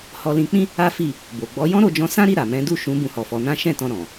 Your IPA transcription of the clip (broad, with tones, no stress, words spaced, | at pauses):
hɔ˧lĩ˧k͡pĩ˦ | a˦fi˦˨ | bo˨ ɡ͡bɔ˨˦jɔ̃˦ ɾo˧d͡ʒɔ̃˧sã˦ɾi˦˨ ɾa˨mɛ̃˨˦du˦˨ʃũ˨˦ bũ˧hɔ˨fɔ˨˦nã˦ ʃɛ̃˦˨tɔ̃˧ ɾɔ̃˨